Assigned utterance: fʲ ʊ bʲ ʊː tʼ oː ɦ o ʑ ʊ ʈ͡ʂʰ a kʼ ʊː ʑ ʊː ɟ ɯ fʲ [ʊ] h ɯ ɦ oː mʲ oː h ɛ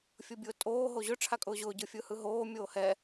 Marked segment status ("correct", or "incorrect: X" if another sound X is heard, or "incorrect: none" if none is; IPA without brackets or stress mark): incorrect: ɯ